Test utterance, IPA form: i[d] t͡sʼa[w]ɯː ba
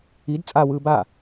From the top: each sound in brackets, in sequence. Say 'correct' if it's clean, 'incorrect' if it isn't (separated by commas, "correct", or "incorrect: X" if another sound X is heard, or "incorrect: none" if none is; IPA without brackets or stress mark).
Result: correct, correct